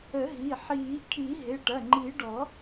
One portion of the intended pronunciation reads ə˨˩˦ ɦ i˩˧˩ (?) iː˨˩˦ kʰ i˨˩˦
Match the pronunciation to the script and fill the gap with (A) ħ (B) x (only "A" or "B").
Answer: A